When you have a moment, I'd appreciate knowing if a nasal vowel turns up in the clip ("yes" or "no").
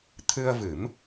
no